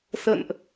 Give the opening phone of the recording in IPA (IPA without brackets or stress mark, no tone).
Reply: s